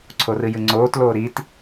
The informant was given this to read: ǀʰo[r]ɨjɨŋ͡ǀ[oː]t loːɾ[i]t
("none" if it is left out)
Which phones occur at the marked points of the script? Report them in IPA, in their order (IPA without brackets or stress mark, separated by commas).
r, oː, i